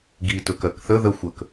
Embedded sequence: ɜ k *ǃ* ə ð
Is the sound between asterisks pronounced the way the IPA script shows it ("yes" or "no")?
no